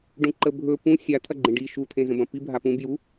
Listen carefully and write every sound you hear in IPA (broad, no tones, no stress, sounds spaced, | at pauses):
ɖ ũ ǃ ə bʱ ɵ p ũ sʲ a t̪ʰ ɐ ɡ͡ǃ ẽ ɖ i ʃ u t̪ʰ ẽ z ə̃ b ɐ̃ p i bʱ a p ũ b j u